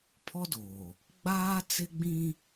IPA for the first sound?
pʰ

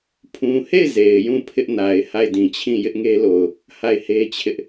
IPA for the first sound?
pʰ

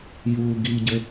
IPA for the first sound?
j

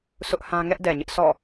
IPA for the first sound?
s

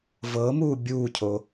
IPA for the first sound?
v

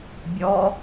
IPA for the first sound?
bʲ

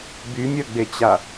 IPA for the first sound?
b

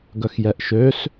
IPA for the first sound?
ɡ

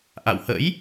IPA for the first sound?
ʔ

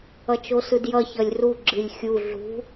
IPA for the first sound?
ʌ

